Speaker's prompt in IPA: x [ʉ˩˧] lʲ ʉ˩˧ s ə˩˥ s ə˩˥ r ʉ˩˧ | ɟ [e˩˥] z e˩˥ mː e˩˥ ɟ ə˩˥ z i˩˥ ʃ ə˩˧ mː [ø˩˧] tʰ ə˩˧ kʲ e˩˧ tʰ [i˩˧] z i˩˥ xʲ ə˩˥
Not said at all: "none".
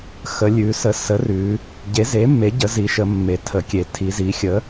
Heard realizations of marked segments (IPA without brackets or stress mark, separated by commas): ə˩˧, e˩˥, e˩˧, i˩˧